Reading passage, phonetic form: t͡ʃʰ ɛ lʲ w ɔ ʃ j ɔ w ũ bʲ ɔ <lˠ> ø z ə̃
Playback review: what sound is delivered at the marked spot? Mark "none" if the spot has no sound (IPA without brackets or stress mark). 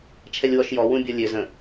lʲ